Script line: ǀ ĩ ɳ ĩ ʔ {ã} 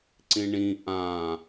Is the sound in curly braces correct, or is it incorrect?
correct